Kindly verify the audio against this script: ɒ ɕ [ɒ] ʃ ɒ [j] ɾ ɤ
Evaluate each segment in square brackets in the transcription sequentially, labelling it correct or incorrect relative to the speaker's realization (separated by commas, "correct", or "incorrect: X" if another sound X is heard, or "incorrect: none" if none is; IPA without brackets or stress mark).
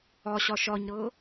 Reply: correct, incorrect: ɲ